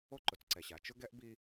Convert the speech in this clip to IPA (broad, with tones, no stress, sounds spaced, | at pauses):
o˦ ǃ ʊ˨˦ t͡s ǀ ɛ˨ ɕ a˨ t͡ʃ ʊ˦ ɡ ɛ˦ ʔ b i˦